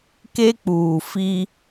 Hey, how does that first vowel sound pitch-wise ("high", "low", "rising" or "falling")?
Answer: high